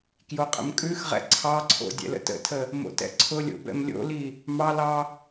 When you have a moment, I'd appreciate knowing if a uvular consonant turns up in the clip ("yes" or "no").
yes